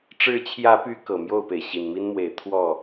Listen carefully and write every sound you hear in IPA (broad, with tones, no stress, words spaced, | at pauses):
ʈ͡ʂɻ̩˨˦t͡ɕʰjä˨˦py˨˦ kɤ˨˩mjo˥˨ʊ̯pe˩ɪ̯ ɕi˨˩nmi˦nmwe˨˦ɪ̯ t̪ʰwɔ˥˨